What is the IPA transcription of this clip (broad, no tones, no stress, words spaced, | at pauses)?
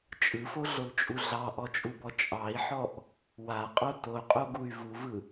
t͡ʃʼɯfoɮolt͡ʃʼu ɮɑʔɔt͡ʃʼubɔ t͡ʃʼɑi̯ħɔʔ | waqʼo toqʼoɡuy̯ vuvɯ